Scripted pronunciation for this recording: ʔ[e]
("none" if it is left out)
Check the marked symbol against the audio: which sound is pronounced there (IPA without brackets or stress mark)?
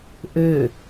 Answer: ø